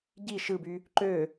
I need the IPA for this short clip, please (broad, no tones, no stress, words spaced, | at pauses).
ɟi ʃɯby | ǃø